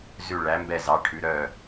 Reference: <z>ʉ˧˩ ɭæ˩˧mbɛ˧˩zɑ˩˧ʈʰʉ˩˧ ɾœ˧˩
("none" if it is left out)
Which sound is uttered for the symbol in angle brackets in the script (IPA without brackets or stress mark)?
z